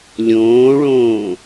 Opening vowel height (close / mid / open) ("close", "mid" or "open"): mid